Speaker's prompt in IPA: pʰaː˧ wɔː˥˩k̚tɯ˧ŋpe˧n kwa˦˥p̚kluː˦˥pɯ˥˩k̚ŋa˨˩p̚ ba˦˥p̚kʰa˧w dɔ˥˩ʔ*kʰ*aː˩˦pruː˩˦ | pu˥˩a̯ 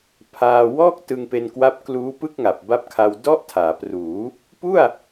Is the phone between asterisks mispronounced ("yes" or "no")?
yes